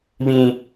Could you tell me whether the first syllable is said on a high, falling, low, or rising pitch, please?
high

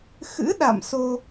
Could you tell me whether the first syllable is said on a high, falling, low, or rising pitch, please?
rising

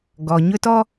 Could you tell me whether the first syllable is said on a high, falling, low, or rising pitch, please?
low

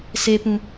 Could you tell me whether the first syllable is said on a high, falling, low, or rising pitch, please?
low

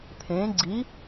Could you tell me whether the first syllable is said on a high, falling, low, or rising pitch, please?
rising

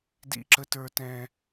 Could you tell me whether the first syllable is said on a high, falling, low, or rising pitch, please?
high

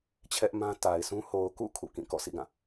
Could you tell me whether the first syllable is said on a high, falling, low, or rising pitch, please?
high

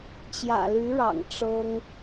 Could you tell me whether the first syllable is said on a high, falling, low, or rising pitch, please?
low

